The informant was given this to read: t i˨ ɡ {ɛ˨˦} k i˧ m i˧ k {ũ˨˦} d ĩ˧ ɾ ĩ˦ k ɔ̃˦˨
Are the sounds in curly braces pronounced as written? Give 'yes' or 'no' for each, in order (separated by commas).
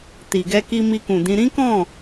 no, no